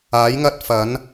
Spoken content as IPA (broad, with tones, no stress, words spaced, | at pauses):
aː˨˥jŋɐ˥t̚fɐ˨˥n